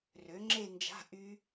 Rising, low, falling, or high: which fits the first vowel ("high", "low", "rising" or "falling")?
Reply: rising